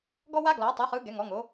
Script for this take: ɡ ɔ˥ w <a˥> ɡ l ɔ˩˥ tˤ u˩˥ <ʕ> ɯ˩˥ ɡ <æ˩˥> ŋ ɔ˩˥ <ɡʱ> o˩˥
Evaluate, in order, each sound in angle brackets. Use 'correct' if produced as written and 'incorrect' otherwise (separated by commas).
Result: correct, incorrect, incorrect, incorrect